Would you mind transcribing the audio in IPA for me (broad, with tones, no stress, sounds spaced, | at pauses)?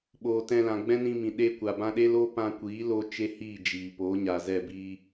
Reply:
ɓ oː˨ t ɛ̃˧ l ã˨ ɡ͡b ɛ̃˦ n ĩ˧ m ĩ˨ ɗ e˧ kʷ a˨ b ã˧ ɗ e˦ l oː˦ p ã˧ kʷ iː˨˦ l o˧ t͡ʃ e˦ h iː˦˨ d͡ʒ iː˨ p oː˨˦ ɲ a˨ z ɛ˦˨ b iː˦